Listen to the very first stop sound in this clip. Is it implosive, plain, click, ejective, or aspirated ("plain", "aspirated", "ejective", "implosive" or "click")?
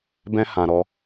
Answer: plain